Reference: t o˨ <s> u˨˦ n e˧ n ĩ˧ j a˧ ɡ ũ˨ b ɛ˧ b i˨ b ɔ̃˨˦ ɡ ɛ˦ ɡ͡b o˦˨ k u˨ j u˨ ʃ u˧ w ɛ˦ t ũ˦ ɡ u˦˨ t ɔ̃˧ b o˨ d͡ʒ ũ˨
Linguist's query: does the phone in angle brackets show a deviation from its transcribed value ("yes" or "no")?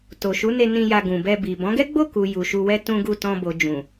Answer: yes